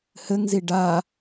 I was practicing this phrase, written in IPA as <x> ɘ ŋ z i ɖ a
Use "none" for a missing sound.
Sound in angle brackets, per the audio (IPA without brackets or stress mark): h